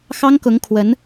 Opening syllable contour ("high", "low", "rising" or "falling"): high